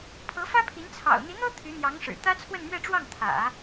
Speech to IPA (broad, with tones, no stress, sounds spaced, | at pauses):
pʰ ɤ˧˥ f ä˥ pʰ i˧˥ n t͡sʰ ɑ̰˨˩ ʊ̯ n̪ i˧˥ n̪ ɤ˥ t̪ʰ y˧˥ n̪ j ɑ˧˥ ŋ ʂ ɻ̩˨˩ t̪ ä˥ t͡sʰ w ə˥˧ n m ɥ ɛ˥˧ ʈ͡ʂ w ɑ˥˩ ŋ t̪ʰ ä̰˨˩˦